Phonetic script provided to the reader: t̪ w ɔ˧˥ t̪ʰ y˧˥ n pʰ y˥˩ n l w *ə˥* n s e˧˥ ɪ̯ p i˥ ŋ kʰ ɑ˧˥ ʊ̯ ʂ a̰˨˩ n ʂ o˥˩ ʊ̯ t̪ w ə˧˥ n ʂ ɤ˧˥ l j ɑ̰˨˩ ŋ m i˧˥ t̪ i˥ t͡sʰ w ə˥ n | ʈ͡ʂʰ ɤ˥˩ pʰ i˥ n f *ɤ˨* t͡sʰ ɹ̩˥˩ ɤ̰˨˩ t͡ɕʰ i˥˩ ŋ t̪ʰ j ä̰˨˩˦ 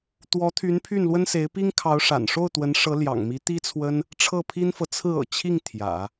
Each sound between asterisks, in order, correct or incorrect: correct, correct

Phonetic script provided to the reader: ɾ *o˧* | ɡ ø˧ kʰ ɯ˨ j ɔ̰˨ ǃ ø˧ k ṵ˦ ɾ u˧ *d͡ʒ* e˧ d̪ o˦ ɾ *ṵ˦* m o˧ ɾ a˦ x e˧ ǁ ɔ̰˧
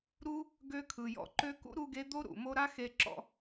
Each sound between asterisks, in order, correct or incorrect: incorrect: u˧, incorrect: ɡ, incorrect: ṵ˨

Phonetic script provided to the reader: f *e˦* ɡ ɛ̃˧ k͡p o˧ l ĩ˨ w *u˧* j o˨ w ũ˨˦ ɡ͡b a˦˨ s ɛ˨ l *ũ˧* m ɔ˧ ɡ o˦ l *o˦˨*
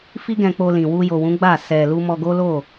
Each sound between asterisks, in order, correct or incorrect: incorrect: i˦, correct, incorrect: u˧, correct

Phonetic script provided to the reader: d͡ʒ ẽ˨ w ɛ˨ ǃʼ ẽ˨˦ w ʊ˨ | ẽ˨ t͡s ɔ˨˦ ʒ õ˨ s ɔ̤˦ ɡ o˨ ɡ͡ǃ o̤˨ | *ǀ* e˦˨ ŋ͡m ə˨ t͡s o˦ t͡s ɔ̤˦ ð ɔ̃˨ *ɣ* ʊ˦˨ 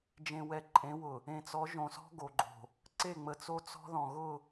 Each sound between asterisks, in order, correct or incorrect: correct, correct

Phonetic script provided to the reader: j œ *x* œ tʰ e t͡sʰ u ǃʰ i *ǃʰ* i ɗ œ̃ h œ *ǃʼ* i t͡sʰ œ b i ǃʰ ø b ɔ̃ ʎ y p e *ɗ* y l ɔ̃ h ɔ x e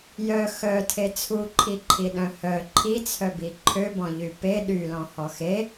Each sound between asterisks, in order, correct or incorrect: correct, correct, incorrect: ǃʰ, correct

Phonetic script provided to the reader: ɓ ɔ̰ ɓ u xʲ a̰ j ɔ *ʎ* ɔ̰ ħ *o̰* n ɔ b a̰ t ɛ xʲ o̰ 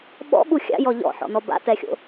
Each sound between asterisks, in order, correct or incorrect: correct, incorrect: ɔ̰

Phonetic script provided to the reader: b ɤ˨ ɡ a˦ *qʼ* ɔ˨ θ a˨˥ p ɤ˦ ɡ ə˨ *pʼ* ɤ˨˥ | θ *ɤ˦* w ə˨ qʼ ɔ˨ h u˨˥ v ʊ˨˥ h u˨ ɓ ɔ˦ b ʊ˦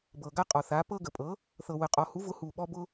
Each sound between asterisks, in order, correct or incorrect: correct, correct, incorrect: ɤ˨

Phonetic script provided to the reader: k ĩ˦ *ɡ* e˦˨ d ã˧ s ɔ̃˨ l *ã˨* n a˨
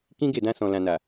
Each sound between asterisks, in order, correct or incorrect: correct, correct

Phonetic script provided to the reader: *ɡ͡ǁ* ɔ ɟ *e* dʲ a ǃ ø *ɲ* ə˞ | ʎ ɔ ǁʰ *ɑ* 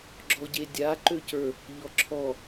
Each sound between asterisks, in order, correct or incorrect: correct, correct, incorrect: c, incorrect: ɔ

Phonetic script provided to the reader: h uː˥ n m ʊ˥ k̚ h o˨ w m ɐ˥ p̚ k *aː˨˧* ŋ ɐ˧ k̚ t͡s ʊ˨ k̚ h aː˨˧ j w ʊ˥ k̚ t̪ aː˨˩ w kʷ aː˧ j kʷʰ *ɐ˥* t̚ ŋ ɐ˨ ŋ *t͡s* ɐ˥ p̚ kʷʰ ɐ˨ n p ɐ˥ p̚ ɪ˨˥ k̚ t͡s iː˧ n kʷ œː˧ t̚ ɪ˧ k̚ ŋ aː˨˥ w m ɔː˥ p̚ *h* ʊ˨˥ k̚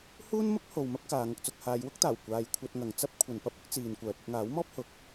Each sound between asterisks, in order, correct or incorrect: correct, incorrect: ɐ˧, correct, correct

